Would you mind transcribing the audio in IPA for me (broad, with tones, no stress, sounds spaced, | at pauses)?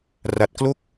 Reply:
r a˦˥ t̚ k l o˥˩ k̚